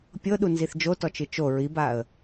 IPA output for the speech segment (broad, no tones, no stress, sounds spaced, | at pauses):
pʲ ɤ ɗ u n z i θ d͡ʒ o t ɔ t͡ʃ ɨ t͡ʃ o ɹ i b a ə̯